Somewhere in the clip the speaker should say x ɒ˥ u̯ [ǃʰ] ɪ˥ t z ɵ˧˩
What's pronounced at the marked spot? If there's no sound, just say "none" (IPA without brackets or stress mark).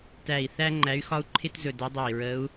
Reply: ǃʰ